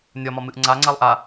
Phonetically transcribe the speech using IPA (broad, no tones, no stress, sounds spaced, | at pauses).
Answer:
nʲ ɒ m ɒ m ɨ ʔ ŋ͡ǀ a ŋ͡ǀ a lˠ ʔ a